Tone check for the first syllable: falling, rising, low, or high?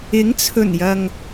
rising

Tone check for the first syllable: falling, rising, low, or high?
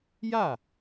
falling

